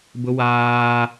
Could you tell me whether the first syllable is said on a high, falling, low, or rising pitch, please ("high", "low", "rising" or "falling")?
high